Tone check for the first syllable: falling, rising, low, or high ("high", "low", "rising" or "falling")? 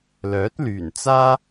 rising